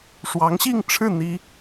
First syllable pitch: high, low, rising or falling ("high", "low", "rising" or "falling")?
rising